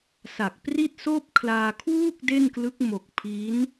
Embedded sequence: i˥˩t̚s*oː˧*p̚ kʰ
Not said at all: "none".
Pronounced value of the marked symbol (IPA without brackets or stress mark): oː˥˩